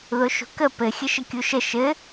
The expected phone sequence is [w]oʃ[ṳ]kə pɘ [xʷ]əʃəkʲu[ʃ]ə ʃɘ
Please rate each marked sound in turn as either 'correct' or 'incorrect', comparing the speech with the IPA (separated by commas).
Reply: incorrect, correct, incorrect, correct